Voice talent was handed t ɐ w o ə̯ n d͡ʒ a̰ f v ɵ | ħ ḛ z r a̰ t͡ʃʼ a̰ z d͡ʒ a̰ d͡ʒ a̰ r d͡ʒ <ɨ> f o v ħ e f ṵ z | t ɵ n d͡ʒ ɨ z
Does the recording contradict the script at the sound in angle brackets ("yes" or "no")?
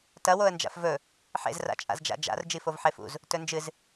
yes